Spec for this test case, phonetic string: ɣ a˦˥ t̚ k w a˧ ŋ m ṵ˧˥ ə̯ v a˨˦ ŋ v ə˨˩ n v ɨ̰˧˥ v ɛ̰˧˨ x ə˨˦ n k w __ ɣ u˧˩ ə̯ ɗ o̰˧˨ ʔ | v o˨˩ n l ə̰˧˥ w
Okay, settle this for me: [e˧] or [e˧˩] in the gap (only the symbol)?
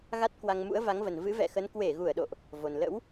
e˧˩